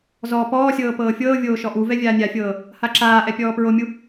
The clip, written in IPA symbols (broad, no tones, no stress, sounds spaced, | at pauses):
z ɔː p ɔː sʲ ɤː p ɤː fʲ ɤː vʲ oː ʃ ɔ ʔ u v ɛ vʲ aː nʲ a fʲ ɤː | h a ǁ aː ʔ ɛ pʲ ɔː p ɹ o mʲ u